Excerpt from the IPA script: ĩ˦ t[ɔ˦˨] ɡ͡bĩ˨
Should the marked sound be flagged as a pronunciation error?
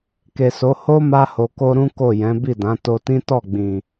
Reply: no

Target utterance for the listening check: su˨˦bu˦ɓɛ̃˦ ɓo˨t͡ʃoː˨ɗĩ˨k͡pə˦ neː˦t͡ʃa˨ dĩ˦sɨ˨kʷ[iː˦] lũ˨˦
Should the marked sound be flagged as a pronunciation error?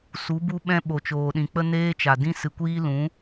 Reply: no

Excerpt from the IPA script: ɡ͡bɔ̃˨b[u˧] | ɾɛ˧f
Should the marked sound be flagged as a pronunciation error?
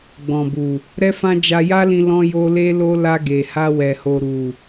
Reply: yes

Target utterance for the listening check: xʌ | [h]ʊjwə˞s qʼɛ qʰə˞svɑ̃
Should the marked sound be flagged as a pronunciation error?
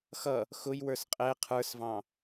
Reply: yes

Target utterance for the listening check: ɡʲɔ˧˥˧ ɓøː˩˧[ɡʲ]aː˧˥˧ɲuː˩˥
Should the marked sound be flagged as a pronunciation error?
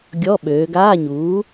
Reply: yes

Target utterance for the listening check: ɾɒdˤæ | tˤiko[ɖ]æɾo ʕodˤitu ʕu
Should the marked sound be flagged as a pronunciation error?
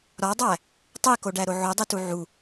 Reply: no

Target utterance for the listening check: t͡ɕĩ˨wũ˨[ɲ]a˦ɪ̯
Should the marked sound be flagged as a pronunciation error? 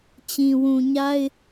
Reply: no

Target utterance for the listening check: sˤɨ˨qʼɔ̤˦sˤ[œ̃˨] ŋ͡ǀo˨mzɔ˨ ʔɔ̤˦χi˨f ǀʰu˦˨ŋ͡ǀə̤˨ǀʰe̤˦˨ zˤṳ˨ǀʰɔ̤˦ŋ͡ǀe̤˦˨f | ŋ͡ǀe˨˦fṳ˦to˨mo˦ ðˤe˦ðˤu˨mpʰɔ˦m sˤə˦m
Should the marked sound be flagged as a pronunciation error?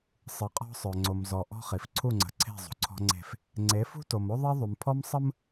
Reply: yes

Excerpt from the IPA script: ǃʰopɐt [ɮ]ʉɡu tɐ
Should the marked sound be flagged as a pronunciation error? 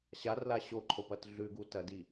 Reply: no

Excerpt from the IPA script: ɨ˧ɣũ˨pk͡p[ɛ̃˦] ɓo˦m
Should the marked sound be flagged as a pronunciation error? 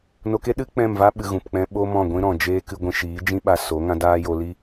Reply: no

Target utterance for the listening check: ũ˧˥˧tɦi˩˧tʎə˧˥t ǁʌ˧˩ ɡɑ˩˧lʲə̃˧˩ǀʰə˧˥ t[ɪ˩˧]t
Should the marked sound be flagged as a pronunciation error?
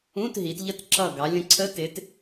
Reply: no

